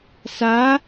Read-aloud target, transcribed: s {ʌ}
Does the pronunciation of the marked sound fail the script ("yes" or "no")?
yes